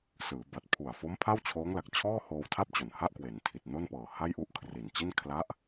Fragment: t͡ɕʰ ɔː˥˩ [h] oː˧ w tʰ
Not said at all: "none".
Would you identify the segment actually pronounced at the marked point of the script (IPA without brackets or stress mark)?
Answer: h